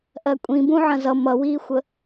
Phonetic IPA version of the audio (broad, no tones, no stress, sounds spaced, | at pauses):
ʔ ɜ kʷʼ ĩ b ũ ʕ ɐ̃ z ʌ m ʌ w iː xʷ ə